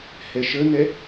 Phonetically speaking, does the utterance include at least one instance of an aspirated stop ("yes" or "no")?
no